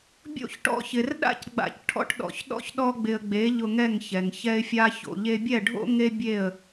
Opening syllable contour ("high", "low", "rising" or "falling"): falling